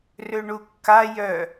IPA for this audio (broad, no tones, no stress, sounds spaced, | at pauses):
r ø ɳ u kː a j œ